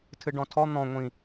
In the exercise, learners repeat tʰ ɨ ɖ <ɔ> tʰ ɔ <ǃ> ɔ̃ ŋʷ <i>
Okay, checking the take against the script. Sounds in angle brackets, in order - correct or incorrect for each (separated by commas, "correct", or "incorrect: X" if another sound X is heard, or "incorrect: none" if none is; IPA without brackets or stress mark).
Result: incorrect: ɔ̃, incorrect: n̪, incorrect: ĩ